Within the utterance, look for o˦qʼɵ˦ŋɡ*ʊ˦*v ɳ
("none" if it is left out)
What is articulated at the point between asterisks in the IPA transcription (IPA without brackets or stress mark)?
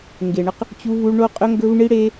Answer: ɵ˦